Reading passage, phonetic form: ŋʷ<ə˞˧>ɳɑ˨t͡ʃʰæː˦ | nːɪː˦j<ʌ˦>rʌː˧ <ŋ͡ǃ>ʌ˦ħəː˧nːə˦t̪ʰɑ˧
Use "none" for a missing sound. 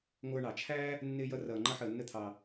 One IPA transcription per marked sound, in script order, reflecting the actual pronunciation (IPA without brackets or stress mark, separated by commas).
ə˞˧, ʌ˦, ŋ͡ǃ